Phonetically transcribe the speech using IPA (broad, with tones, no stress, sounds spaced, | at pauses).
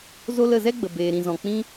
z o˦ l ə˦˨ z ɛ˦ ɡ͡b ə˨ b eː˨ ɾ ĩ˨ z ɔ̃˨ k͡p ĩ˦